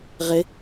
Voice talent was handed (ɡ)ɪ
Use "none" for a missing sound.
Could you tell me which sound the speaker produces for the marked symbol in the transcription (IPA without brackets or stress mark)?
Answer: ʁ